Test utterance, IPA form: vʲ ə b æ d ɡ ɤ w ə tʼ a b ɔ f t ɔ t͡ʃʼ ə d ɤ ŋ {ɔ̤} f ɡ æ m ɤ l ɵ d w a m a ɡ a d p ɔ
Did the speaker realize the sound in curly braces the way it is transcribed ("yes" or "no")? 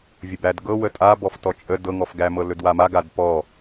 no